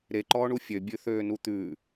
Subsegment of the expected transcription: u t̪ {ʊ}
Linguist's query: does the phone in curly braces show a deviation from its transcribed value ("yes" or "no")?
yes